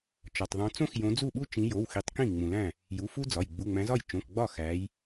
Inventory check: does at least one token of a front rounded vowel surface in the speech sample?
no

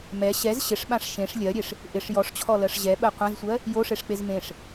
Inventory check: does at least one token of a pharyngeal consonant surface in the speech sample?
no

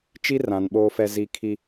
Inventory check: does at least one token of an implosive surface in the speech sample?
yes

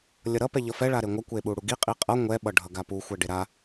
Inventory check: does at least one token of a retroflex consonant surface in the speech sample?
yes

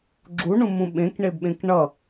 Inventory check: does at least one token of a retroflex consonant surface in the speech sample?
yes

